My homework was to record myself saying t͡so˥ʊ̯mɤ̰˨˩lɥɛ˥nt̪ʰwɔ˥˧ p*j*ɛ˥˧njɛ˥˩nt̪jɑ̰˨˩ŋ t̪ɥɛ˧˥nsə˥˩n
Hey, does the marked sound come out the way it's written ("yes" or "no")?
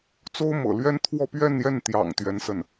no